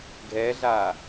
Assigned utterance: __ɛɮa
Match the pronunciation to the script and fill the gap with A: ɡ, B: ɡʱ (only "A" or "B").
B